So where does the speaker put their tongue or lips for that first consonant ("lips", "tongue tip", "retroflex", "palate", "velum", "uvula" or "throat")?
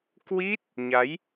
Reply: velum